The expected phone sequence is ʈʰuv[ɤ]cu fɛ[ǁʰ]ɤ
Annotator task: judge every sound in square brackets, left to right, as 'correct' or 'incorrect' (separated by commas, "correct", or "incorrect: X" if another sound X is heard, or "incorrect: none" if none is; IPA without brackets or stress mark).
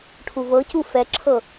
correct, correct